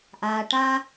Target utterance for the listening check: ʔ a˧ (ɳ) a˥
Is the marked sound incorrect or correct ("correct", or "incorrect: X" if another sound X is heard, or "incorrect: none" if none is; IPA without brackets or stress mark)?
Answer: incorrect: ʈ